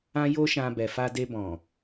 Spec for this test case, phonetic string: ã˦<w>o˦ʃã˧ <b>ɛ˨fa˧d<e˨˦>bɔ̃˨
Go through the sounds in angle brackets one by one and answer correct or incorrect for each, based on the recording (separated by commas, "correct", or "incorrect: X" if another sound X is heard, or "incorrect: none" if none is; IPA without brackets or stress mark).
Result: incorrect: j, correct, incorrect: e˧